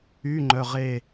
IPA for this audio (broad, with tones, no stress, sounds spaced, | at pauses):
y˧˥˧ ŋ͡ǃ œ˧˥˧ ʁ e˥˧